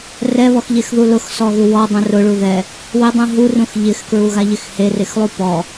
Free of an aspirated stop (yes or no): yes